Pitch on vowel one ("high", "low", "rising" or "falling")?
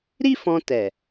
high